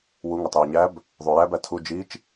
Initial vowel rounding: rounded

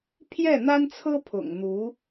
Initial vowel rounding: unrounded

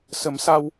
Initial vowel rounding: unrounded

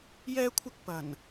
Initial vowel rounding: unrounded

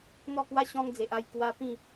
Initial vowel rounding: rounded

